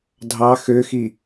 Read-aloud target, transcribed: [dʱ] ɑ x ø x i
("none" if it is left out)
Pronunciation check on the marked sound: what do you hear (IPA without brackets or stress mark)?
dʱ